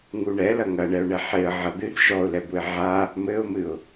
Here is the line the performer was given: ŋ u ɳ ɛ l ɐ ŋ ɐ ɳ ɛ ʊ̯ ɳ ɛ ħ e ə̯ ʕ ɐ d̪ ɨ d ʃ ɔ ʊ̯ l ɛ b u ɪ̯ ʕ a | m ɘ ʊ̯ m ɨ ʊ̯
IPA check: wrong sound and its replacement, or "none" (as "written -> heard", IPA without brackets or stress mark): none